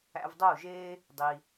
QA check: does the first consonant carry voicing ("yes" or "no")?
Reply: yes